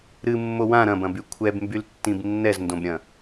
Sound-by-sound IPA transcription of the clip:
ɾ ɨ mː o w ã ɾ ɐ̃ b ɐ̃ b y kʷʰ ɛ b m b y l tː ĩ b nː ɛ z n d õ b ɾʲ ɐ̃

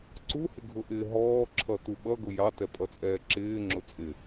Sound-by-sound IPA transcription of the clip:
ǀ u h ɪ ɡʱ ʊ ʔ ɪː ɦ ɔː ǁʰ ʌ t u ɓ ʌ ɡ ʊ j ɑ t ɛ pʼ ʌ t͡sʼ ɛː ǁ ɪː ŋ͡ǁ ʊ t͡sʼ ɪ

